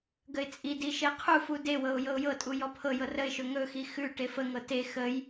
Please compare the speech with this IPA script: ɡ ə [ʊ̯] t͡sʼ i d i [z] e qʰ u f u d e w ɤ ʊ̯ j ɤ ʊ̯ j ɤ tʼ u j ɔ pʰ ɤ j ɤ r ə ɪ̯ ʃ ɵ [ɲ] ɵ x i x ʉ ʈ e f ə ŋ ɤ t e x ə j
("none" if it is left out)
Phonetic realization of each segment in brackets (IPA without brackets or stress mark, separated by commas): ɪ̯, ʃ, ŋ